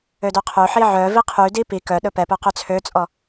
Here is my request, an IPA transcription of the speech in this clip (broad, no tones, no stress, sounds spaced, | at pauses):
ø d œ qʰ ø ħ i ʕ œ v i qʰ y d i p i k œ ɗ ɵ p ɛ p œ q ø t͡sʰ ø t͡sʼ ɔ